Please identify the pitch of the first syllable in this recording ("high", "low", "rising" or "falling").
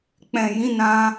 low